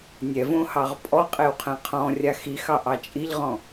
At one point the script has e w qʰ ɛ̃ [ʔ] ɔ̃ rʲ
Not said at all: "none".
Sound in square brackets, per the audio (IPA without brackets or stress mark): qʰ